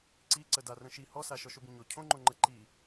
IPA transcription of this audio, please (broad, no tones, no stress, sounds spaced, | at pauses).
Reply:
ǀ i ǀ ə d a r ə̃ ʃ i h ɔ s a ʃ ɔ ʃ o b ĩ ɲ o cʰ õ ŋ͡ǃ õ ŋ͡ǃ ə ǃ i